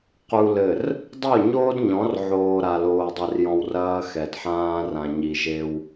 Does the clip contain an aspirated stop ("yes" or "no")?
no